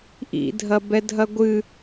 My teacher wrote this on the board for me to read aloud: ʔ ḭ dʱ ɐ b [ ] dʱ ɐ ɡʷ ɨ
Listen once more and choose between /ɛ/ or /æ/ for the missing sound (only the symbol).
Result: ɛ